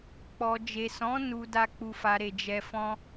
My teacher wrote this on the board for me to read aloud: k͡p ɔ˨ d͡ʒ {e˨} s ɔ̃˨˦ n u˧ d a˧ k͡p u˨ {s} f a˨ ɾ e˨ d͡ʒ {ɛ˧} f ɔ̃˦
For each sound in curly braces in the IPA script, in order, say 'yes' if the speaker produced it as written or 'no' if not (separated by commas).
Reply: yes, no, yes